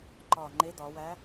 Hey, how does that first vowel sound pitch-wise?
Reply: low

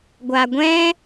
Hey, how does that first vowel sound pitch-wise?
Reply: low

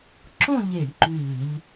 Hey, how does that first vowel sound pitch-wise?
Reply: falling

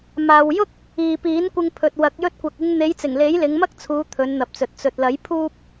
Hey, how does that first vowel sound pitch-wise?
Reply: low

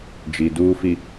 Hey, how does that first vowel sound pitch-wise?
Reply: low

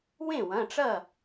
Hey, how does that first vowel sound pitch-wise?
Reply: falling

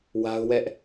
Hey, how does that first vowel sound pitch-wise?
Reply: high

